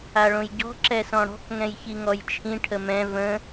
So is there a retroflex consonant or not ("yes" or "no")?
yes